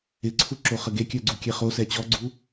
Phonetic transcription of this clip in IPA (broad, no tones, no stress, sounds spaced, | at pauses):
ɪ ǀʰ u ǁ o χ ə ɡ e kʲ œ ɡ͡ǀ u kʲ ɛ χ o s ɛ t͡ɕ ɔ ɡ͡ǀ u